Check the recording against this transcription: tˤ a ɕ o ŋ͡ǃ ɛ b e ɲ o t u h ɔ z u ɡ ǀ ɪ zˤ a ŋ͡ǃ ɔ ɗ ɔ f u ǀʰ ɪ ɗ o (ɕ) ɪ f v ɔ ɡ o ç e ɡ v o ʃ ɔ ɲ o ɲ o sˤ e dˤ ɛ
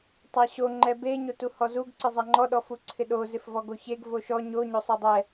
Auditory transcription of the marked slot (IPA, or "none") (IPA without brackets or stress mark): z